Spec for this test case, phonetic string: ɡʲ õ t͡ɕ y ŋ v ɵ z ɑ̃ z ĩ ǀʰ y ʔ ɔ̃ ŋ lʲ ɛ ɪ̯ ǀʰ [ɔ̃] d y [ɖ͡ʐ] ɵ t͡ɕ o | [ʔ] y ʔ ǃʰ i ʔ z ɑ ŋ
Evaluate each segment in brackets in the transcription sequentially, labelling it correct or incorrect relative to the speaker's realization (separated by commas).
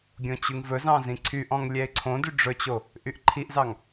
incorrect, correct, correct